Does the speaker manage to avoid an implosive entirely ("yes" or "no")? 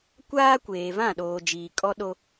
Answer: no